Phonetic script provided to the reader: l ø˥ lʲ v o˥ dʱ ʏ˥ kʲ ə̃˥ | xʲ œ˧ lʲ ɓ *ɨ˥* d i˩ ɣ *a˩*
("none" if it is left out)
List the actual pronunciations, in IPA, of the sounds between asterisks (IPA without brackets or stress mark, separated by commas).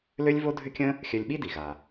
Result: i˥, a˩